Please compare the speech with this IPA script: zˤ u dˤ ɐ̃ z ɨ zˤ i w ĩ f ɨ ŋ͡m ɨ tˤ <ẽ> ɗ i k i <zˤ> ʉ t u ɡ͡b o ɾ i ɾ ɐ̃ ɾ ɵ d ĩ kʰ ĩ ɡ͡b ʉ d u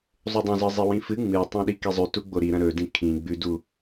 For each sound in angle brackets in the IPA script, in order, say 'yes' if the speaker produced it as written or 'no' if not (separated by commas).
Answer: yes, yes